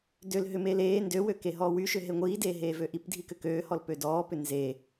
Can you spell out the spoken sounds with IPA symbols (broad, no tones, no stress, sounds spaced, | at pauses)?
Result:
d ø l ɦ ʏ m eː l eː n d ø w ø k e ɦ ɔː w y ʃ ʏ ɦ e ŋʷ iː d eː ɦ eː v ø ʔ i p dʱ i k ʏ k øː h ɔ l p ø d ɔː p ʏ n z e